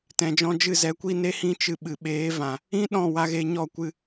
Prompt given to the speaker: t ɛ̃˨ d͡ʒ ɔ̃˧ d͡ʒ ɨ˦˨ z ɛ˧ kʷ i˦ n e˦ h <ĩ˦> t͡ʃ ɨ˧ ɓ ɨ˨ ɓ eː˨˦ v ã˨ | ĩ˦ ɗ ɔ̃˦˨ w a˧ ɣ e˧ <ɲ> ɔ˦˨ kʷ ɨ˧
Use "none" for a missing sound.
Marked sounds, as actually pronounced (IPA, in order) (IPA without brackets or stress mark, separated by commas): ĩ˦, ɲ